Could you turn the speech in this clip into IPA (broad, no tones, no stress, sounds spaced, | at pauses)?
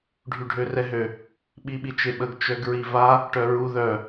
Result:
ɖʱ y ɖʱ ø r ɛ ɦ ø | ɓ i ɓ i t͡ʃ e ɓ ə ɡ t͡ʃ œ ɡ ɹ i v a | ʈ œ ɹ u ð œ